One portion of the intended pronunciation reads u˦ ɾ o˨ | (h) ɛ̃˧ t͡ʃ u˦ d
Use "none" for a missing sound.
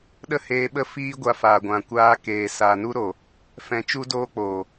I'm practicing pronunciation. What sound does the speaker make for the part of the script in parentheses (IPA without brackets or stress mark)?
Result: f